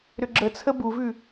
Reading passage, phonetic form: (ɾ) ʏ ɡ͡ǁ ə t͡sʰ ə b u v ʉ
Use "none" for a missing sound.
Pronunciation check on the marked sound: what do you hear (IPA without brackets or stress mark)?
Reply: ɾ